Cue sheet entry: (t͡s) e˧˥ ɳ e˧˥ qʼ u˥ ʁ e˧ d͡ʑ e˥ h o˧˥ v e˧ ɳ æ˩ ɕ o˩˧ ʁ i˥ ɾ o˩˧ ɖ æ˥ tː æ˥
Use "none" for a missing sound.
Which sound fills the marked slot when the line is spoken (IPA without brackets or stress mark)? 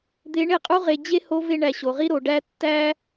d̪